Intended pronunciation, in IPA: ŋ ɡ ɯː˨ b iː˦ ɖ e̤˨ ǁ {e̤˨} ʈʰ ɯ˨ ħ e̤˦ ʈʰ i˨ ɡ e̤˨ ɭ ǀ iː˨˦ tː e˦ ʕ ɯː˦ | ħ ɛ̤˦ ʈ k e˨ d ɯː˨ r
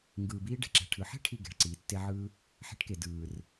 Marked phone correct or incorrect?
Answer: incorrect